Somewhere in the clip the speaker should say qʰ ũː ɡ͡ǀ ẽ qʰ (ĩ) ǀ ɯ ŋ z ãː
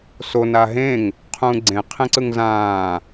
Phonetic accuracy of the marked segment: incorrect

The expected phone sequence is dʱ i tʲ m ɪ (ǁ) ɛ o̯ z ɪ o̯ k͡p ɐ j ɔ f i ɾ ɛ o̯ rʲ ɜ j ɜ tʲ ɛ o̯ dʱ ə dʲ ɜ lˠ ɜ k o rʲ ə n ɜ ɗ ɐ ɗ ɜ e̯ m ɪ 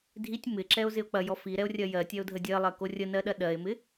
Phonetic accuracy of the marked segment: correct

